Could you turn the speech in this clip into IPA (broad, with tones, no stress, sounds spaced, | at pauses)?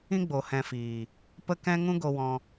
ĩ˦ ɡ͡b o˨ h ɛ̃˧ f iː˨ | p ə˦ k ɛ̃˦ ŋ ũ˦ ɡ o˧ w ɔ̃˧